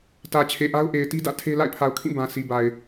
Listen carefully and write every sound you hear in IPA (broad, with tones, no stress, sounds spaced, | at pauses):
t ä˨ t͡ɕʰ e˨ ʔ a˦ ʊ̯ ʔ e˨ ɪ̯ t i˦ d ä̰˦˨ tʰ e˦ l a̰˦˨ ɪ̯ pʰ a˨ ʊ̯ kʰ ĩ˦˨ b ã˨ sʰ i˨ b a˨ ɪ̯